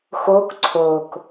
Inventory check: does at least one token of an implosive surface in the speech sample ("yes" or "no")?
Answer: no